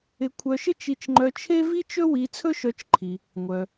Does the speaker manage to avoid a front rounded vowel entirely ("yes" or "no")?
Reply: no